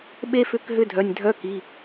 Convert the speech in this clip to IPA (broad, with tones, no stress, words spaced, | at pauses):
ɓe˥fʏ˧˥˧kɦʏ˧˥˧ dʱœ˩˧˩nʲdʱœ˧˥˧ki˩˧˩